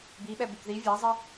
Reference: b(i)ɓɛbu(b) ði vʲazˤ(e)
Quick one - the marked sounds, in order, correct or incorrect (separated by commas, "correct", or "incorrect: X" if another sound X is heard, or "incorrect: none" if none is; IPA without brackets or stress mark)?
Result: correct, correct, correct